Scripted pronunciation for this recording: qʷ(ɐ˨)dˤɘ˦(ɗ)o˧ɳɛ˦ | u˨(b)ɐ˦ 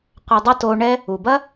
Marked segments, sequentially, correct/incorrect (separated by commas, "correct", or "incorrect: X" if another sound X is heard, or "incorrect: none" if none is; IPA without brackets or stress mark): incorrect: ɐ˧, incorrect: t, correct